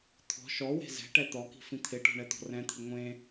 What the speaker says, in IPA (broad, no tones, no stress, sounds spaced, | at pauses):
t̪ʰ ɔ̤ ʃ ɔ w e̤ z ɛ̤ ʈ ɛ t̪ ɔ k i̤ f ĩ t̪ʰ ɪ ʈ ɔ̤ ɳ ɛ t̪ ɔ̤ r ɛ̃ t̪ʰ ɪ ŋʷ ẽ